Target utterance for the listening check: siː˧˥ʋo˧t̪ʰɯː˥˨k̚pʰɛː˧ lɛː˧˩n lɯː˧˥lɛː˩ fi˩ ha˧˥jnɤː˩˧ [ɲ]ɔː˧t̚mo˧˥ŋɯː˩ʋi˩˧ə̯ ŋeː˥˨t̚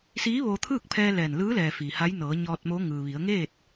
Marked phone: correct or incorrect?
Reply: correct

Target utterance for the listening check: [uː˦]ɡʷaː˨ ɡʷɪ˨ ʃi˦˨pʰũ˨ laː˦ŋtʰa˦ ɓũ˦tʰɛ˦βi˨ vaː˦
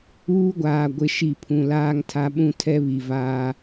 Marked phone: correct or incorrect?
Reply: correct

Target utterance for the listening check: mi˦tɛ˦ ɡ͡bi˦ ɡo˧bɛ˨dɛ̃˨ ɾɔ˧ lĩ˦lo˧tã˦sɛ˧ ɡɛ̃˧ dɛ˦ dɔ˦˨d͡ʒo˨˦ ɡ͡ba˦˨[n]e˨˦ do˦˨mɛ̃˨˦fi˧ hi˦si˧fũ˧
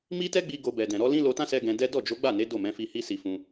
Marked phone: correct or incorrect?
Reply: correct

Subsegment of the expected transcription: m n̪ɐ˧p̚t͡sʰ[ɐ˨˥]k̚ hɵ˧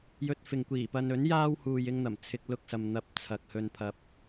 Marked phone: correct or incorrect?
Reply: incorrect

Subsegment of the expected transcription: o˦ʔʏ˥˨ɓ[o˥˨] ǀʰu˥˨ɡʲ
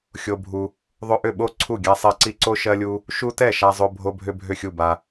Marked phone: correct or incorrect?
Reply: correct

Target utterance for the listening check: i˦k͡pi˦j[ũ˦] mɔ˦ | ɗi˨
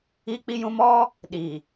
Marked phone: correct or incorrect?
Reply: correct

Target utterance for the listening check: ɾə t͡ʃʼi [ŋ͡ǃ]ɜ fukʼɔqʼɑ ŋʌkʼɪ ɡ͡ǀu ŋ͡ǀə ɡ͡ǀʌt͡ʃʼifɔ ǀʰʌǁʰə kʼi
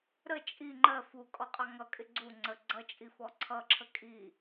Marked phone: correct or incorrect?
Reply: correct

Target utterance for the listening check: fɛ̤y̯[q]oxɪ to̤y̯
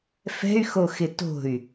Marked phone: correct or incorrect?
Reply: incorrect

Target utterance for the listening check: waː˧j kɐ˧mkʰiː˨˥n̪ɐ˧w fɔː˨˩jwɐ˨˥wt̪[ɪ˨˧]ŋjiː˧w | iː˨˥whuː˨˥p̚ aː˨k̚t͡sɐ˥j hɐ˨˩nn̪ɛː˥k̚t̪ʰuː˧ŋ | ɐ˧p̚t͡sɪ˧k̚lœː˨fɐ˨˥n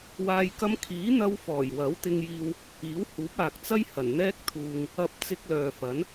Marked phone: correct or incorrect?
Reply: incorrect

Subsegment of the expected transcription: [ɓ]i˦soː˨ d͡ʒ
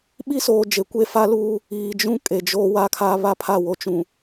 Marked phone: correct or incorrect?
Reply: correct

